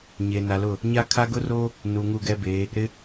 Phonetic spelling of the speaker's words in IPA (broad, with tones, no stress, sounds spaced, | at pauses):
ɲ e˨ n a˨ l ʊ˦˨ | ɲ a˦ kʰ a˦ ɡ ʊ˦ r oː˦ | n u˨ ŋ u˦˨ ɡ ɛ˦ b eː˨˦ | ɾ ɪ˦